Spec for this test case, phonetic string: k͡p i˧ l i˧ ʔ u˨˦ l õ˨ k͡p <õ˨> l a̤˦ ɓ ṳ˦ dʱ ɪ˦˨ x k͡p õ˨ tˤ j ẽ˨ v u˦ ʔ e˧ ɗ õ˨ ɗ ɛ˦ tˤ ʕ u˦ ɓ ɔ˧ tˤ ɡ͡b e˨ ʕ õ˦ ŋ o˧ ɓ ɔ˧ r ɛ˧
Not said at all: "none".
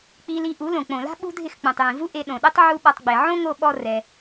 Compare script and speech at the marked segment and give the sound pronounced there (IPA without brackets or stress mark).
õ˨